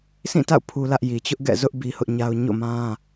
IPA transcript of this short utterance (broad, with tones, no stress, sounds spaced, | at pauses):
s ĩ˦˨ t a̰˦˨ ʊ̯ pʰ u˦ l ä˦ ʔ j i˨ t͡ɕ ʊ˦ ʔ ɡ ɛ̰˦˨ z ʊ˦ ʔ b i˦ h ʊ˦ ʔ ɲ a˦ ʊ̯ ɲ o̰˦˨ m ã˦